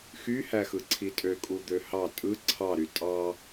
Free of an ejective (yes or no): no